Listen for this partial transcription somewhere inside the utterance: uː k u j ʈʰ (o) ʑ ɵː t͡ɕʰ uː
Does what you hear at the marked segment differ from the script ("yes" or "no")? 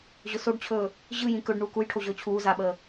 no